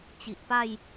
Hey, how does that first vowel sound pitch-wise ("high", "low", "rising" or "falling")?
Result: low